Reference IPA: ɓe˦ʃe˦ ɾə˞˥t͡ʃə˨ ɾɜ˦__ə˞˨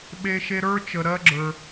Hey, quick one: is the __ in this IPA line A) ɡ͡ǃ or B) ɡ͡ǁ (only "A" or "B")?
B